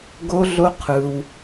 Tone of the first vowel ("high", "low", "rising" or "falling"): high